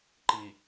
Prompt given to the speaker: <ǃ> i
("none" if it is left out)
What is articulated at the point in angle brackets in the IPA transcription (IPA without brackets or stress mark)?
ǃ